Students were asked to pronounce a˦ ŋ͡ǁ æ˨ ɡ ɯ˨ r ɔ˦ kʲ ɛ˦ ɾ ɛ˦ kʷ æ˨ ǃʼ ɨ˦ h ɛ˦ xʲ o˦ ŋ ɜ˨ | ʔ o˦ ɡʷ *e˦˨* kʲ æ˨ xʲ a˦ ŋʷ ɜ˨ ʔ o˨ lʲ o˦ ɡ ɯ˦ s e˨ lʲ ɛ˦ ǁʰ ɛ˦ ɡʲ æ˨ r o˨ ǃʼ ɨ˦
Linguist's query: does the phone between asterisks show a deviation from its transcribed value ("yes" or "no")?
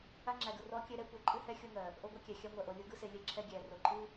yes